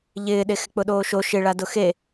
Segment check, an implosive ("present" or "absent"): present